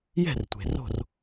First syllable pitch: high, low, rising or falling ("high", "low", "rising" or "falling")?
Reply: falling